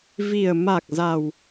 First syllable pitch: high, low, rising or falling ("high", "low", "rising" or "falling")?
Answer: low